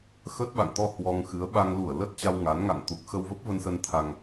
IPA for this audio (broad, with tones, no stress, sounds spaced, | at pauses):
x ə˦˥ t̚ ɓ a̰˧˨ ŋ t̪ ɔ˧ h w ɔ˧ ŋ x ɨ˨˦ ə̯ ɓ a˧ ŋ l u˧˩ ə̯ l ə˦˥ t̚ t͡ɕ a˧ w ŋ a˨˦ n ŋ a̰˧˨ ŋ t̪ u˨˩ k̚ x ə˧ w v ə˦˥ p̚ v ə˧ n s ə˧ n t̪ʰ a˧ ŋ